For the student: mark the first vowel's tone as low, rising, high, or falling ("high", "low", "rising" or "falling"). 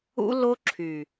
high